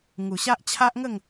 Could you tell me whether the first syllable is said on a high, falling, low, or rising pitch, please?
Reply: low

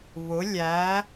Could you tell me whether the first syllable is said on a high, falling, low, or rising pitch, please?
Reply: rising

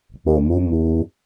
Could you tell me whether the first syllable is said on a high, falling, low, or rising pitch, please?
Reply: low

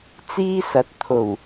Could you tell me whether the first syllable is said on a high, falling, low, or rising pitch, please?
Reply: high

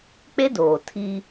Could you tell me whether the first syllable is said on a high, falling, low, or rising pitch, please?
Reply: high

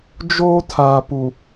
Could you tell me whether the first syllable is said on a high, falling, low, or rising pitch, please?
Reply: high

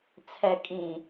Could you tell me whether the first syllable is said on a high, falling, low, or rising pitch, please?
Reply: low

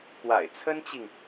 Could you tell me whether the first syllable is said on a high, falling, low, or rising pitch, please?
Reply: low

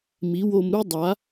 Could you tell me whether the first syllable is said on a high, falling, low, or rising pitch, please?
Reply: rising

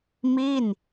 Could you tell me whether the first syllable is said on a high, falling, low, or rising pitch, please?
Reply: falling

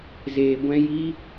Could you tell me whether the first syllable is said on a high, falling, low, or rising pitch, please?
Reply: low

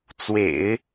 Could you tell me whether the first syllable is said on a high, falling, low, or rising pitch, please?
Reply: low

